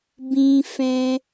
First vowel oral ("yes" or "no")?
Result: no